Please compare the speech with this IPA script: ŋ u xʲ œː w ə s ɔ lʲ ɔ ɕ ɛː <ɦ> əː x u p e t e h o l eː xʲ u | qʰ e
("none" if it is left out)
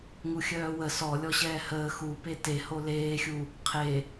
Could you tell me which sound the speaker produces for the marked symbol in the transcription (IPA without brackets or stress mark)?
h